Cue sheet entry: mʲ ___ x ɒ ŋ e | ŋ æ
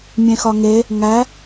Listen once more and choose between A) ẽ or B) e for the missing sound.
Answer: A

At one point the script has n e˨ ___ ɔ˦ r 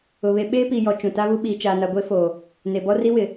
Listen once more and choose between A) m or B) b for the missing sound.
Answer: B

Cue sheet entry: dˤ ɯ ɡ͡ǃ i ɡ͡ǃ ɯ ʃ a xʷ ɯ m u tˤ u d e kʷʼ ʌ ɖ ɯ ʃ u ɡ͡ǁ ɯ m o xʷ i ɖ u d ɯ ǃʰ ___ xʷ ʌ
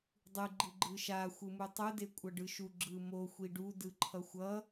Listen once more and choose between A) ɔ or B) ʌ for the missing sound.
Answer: B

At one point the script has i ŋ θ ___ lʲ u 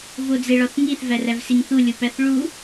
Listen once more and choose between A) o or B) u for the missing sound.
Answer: B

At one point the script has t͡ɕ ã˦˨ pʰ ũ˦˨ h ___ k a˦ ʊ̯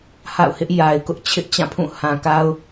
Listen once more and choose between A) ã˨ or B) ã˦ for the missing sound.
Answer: A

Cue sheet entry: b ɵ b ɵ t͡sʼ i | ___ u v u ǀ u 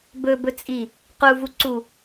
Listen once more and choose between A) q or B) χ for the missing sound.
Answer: A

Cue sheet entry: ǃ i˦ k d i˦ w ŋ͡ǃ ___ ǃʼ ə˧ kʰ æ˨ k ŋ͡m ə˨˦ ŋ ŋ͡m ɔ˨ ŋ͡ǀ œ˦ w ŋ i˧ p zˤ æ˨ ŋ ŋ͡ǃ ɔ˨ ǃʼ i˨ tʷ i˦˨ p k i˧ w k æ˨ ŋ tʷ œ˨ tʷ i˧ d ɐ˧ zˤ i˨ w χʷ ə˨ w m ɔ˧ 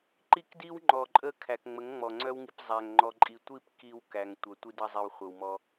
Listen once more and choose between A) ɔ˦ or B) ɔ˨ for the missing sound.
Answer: B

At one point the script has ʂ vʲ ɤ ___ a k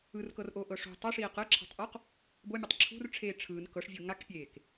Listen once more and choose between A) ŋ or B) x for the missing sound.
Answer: A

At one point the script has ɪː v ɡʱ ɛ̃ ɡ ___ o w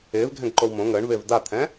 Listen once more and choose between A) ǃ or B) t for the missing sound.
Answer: A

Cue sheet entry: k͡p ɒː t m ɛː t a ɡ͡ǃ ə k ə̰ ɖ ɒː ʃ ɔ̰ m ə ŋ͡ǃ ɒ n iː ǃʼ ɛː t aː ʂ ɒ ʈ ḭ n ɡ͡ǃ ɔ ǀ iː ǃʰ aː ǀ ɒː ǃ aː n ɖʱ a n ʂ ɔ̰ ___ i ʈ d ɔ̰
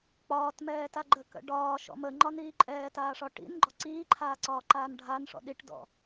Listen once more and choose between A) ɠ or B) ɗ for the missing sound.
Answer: B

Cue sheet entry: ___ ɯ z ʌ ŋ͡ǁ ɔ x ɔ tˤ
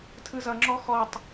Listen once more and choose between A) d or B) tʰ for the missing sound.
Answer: B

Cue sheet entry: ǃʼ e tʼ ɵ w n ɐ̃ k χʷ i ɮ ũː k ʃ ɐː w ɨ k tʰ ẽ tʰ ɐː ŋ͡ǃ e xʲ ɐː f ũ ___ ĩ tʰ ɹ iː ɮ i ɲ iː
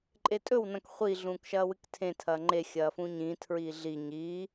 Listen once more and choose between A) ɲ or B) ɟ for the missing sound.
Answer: A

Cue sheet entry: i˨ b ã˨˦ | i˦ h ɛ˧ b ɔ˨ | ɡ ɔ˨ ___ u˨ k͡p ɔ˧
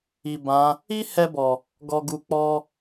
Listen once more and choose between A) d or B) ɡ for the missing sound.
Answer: B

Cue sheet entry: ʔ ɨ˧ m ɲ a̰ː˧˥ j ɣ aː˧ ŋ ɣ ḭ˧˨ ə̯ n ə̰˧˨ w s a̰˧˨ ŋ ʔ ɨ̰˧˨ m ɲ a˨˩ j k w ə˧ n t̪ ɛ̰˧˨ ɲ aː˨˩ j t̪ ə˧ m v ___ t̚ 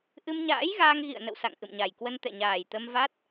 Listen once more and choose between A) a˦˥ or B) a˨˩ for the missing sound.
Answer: A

